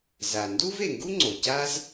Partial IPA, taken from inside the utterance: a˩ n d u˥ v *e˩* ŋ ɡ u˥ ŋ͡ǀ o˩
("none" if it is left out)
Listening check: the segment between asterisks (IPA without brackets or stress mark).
e˩